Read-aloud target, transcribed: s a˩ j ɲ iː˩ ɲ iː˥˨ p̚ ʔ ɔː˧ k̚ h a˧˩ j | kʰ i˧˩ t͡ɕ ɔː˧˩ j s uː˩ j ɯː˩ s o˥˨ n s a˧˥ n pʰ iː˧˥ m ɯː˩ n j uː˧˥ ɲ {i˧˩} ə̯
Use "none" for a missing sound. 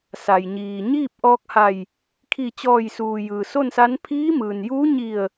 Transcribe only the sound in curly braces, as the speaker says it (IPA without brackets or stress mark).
i˧˩